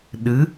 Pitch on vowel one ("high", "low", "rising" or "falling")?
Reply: rising